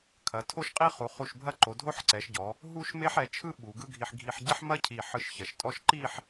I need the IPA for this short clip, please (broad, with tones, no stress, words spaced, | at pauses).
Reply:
kʰɐ˩˧ tʰo˥ʃqʼi˥χu˩˧ χu˧˩ʃbʱɐ˥˧ǃo˩˧ dʱo˥ħǀɛ˩˧ʃɟɔ˩˧ | ɦu˥ʃme˥ħ ɛ˩˧t͡ʃʰɯ˥ ɓu˩˧ɡɯ˥ɡʱi˧ħ ɡʱi˧ħɟɐ˥ħmɐ˥ cʰi˧˩ħɯ˧ʃçɐ˩˧ʃtʼɔ˥ʃ ǃi˥˧ħ